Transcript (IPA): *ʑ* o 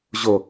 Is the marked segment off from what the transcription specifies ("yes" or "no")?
no